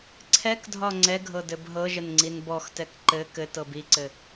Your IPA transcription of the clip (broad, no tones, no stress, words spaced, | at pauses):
ǀʰɛkdʱɒ ŋ͡ǀɛ ɡʱɤdɘbɦɤʒən ŋ͡ǀinbɔxtɛk ǃɘ kɘtɤ biǀɘ